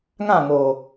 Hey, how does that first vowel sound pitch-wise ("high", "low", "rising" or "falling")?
falling